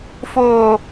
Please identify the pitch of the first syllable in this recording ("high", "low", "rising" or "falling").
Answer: low